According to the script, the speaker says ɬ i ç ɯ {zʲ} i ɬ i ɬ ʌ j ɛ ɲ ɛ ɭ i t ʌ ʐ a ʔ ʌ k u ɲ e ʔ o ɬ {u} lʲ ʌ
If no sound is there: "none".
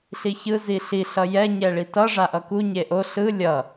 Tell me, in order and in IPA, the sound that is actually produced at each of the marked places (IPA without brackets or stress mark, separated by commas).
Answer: z, ɯ